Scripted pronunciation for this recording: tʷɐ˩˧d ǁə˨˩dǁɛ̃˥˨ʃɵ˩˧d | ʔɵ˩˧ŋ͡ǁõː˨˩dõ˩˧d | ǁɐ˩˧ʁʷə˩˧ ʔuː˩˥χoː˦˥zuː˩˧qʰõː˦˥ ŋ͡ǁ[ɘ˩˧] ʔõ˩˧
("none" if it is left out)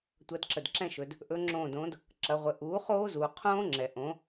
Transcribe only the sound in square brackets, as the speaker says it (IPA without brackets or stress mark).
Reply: ɛ˩˧